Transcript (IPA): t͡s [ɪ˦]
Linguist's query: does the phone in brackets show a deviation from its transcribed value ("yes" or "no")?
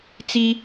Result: yes